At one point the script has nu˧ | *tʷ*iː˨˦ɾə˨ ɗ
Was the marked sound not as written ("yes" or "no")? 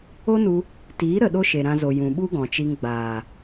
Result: yes